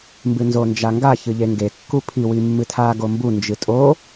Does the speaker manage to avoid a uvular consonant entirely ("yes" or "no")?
yes